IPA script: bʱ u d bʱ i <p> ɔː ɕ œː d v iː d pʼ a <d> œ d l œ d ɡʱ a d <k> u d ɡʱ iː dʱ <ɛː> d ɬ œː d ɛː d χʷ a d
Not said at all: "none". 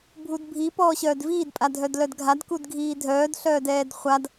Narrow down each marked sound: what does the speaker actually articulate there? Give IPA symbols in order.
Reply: p, dʱ, k, œː

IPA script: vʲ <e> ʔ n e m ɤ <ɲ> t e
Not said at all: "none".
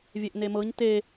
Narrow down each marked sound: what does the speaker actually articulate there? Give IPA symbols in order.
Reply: e, ɲ

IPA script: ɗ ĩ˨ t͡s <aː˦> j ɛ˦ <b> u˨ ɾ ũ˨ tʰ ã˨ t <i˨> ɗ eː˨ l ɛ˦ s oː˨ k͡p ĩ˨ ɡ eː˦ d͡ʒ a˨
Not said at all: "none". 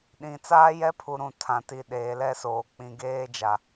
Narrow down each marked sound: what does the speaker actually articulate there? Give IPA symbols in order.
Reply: aː˦, pʰ, i˨

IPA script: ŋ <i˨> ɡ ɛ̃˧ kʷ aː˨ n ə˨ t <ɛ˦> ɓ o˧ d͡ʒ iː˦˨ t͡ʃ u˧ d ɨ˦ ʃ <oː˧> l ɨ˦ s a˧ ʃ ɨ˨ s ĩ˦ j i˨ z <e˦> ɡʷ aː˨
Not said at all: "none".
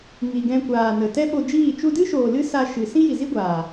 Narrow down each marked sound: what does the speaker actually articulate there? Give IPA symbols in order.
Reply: i˨, ɛ˦, oː˨, i˦

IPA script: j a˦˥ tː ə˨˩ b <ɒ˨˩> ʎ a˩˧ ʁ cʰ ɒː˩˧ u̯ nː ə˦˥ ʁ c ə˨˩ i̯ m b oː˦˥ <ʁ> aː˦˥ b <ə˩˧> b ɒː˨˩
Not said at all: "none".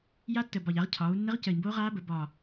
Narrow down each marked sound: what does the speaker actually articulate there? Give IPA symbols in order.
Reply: ɒ˨˩, ʁ, ə˩˧

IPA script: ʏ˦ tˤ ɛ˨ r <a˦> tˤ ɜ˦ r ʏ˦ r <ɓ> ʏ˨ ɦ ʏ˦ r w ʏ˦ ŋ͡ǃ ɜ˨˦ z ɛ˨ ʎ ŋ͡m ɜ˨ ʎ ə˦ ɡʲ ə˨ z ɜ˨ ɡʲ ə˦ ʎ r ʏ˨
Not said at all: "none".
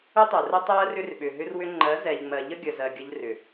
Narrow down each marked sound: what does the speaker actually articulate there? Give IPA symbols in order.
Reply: ə˦, ɓ

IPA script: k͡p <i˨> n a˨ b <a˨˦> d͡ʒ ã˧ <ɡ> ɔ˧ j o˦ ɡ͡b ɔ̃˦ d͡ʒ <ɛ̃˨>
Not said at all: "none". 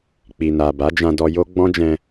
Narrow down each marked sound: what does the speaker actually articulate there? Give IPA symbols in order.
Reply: i˨, a˨˦, d, ɛ̃˧

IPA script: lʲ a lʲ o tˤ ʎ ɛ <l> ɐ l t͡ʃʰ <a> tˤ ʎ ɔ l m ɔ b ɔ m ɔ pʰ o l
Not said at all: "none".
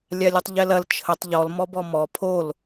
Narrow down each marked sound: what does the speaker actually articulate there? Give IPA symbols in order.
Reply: l, ə

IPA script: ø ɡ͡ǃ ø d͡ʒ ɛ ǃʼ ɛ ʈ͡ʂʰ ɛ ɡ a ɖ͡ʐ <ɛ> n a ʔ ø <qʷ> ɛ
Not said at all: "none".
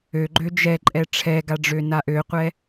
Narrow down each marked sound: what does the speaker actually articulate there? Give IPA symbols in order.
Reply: ø, qʷ

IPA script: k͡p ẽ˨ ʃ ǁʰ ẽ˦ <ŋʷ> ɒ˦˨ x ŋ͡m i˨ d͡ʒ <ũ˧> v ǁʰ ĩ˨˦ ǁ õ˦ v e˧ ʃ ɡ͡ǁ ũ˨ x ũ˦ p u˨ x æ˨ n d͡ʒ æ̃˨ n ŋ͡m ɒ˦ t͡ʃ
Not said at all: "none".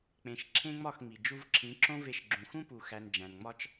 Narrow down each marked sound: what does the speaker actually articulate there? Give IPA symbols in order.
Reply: ŋ͡m, u˧

